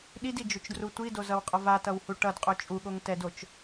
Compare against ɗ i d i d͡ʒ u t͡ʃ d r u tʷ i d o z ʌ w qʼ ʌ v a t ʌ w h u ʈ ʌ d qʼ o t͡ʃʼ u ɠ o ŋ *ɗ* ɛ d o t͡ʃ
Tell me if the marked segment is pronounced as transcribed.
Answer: no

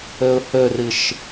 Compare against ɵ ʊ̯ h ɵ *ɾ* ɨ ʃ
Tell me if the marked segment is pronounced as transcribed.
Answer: no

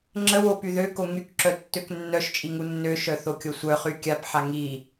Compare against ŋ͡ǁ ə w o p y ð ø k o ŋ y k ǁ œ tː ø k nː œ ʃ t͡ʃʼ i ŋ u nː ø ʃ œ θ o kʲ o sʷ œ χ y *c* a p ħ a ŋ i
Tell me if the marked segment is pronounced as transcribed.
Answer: no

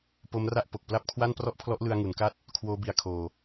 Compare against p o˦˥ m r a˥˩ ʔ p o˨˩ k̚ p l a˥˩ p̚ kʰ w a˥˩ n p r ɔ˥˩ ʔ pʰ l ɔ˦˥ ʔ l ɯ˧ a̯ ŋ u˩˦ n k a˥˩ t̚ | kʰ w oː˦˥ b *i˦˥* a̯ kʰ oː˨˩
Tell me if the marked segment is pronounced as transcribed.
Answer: no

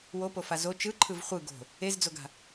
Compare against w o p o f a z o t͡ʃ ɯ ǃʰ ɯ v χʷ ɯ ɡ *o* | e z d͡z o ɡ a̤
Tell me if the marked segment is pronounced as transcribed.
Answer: no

